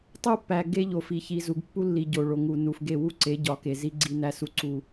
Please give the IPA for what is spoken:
tˤ u˦ pː æ˨ ɡ e˦ ʎ o˨ f i˨ ç i˨ z u˨ ɡ pː u˦ lː i˨ ɟ o˨ ɭ o˨ ŋ u˨ n u˨ f ɡ e˦˨ w u˦ ǀ e˨˦ ɟ ɒ˨˦ k e˨ z i˦ ɡ͡ǀ i˦ n æ˦ s u˦ ǀ u˦

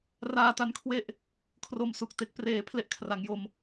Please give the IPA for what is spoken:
r aː˧ t a˧ n kʰ w e˦˥ ʔ | kʰ r o˧ m s u˨˩ k̚ t e˨˩ k̚ p r eː˩˦ pʰ l e˥˩ ʔ kʰ r a˩˦ ŋ j o˧ m

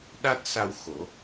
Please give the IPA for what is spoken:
ɗ a˦˥ t̚ s a˧ w x o˨˩˦

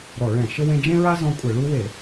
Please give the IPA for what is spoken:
ɾ ɔ˧˩˧ ɭ ɛ̃˧˩˧ ʃ ɘ˦ w ẽ˦ d͡ʒ ẽ˦ ɹ a˦ z ɔ̃˦ kʷʼ ɘ˧˩˧ ɭ u˦ w e˧˩˧

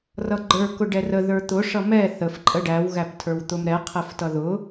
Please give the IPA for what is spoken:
r ʌ ɡ͡ǃ ə˞ k ʊ ɖ ɛ r ə ð ə˞ t̪ ʊ ʂ ʌ m ɛ θ ə f ǃʼ ə ɖ æ w ɣ æ p tʰ ə˞ w t̪ ʊ m ɾ ɛ qʰ ɛ f t ʌ ð ʊ

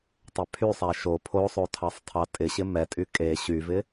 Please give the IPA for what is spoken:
tˤ ɛ pʰ y sˤ a ʃ o pʰ o sˤ o tʰ ɑ sˤ tʰ ɑ tʼ ɪ ɕ ɪ m ɛ tʼ y kʼ e ɕ y v ɪ

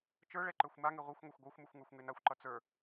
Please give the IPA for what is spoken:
t͡ʃ ə˞ ɭ ɛ ǃ ə˞ xʷ m a ŋ e ʁʷ ʌ xʷ ŋʷ e xʷ ɡʷ ə˞ xʷ m ʉ xʷ ŋ ə˞ xʷ ŋ e n a xʷ ǃ ʌ t͡s ə˞

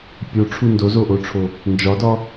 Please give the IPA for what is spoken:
pʲ o ʈ͡ʂʰ u n d o z o ʔ o ʈ͡ʂʰ o | n d͡ʒ ɒ d ɒ

